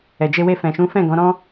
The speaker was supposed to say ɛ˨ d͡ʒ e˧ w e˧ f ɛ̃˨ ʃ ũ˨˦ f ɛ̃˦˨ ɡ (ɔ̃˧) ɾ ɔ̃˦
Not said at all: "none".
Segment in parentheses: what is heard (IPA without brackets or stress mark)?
ɔ̃˨˦